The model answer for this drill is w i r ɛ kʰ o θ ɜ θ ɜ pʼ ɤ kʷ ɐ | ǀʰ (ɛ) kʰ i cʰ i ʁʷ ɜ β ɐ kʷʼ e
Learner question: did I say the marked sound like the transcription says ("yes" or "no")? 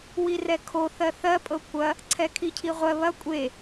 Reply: yes